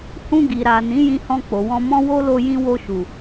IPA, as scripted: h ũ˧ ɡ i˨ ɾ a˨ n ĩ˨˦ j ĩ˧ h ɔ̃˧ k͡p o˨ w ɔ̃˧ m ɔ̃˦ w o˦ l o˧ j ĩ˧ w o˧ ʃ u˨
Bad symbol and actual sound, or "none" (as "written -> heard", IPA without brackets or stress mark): none